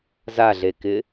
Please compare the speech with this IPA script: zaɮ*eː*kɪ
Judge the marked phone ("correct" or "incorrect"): incorrect